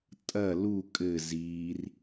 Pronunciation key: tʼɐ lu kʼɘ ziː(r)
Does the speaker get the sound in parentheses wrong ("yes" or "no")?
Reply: no